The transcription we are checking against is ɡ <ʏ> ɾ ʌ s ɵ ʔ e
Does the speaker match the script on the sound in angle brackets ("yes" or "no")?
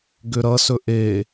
yes